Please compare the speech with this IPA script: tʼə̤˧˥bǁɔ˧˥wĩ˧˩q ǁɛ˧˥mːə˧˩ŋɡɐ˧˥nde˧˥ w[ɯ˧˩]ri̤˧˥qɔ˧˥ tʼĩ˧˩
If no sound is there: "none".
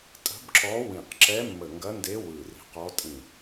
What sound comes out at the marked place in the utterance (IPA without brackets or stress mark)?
ɯ˧˩